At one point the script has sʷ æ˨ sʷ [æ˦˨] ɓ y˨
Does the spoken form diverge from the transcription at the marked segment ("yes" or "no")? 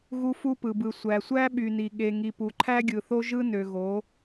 yes